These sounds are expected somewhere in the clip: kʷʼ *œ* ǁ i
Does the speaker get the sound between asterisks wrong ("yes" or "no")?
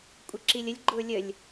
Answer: yes